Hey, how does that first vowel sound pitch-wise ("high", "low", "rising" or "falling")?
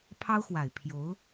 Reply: high